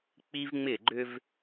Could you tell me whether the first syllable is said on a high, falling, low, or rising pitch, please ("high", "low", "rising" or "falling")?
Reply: high